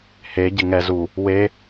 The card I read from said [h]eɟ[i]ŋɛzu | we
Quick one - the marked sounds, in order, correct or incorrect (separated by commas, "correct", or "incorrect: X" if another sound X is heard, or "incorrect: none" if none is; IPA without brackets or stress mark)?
correct, incorrect: ɪ